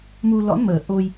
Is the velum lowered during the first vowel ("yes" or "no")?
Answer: no